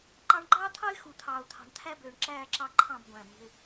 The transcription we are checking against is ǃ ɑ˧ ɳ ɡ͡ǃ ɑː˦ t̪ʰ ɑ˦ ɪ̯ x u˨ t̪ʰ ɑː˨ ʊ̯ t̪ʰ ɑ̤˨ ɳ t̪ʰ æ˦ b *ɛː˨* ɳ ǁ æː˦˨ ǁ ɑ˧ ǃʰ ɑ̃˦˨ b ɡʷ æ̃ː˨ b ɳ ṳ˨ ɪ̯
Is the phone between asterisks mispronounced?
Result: yes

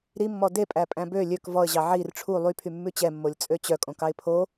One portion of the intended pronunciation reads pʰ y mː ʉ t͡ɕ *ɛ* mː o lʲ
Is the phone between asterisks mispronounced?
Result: no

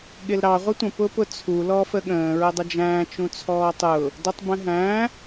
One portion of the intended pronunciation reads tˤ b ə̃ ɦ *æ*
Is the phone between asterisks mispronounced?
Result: yes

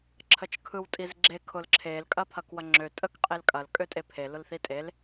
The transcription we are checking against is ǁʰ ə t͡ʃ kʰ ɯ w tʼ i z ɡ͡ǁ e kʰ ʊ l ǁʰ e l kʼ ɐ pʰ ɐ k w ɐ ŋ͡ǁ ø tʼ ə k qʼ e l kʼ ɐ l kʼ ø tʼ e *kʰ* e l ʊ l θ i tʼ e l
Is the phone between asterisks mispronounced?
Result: yes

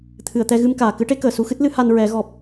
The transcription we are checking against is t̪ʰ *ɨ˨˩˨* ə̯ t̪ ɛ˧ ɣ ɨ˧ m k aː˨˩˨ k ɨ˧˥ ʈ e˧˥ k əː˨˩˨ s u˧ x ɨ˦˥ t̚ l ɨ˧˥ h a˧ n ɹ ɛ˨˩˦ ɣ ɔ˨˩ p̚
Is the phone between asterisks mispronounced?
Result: no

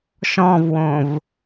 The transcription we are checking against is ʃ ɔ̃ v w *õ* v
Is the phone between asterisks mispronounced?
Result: no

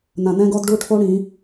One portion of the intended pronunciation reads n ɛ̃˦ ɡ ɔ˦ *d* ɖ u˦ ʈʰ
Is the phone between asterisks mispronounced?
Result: no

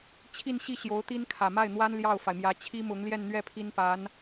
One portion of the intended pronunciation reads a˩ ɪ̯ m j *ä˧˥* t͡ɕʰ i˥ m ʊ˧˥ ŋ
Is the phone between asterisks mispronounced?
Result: no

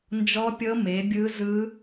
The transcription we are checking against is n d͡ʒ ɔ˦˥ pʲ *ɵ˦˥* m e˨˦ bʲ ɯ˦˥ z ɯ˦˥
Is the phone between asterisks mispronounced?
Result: yes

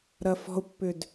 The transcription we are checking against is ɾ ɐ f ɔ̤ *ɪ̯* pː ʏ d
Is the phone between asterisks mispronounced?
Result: yes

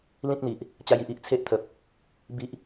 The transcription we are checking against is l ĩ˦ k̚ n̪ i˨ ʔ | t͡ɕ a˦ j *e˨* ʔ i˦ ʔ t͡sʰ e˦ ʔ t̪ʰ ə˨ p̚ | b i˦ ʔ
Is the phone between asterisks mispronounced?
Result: yes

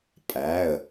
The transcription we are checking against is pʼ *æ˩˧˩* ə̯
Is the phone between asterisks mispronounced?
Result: no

